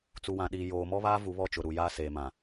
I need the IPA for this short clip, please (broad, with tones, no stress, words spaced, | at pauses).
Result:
t͡su˨wã˨ɗiː˨ joː˨mɔ˦βaː˦ vu˨˦βɔ˦˨t͡ʃʊ˨ ɾu˨ jaː˦seː˨mã˨